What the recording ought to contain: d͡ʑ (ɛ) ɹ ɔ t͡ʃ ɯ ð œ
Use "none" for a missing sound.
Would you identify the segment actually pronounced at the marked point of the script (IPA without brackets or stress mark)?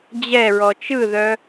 ɛ